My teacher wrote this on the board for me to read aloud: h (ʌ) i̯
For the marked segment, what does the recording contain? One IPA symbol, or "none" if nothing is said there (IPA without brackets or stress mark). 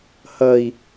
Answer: ʌ